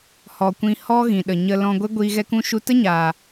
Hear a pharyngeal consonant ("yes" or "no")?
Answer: no